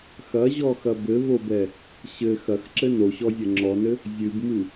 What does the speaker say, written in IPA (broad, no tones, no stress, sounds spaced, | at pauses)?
x ɐ ʑ ɔ x ɐ b ɘ v o b ɛ | ɕ ɘ x ɐ x ǁ ɘ n o ɕ ɔ zʲ ɐ ŋ͡ǁ ɔ n ɘ | zʲ ɨ b m ɨ